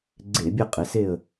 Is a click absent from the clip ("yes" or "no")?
no